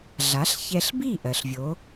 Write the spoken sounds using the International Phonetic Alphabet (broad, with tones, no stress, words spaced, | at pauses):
ɮa˩˥ɬçɛ˧ɬbi˥˩ ʔɜ˩ɬvʲo˩˥